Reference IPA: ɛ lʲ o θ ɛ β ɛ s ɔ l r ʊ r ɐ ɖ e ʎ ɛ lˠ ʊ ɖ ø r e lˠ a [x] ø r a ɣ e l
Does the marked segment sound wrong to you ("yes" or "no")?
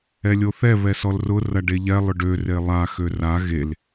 no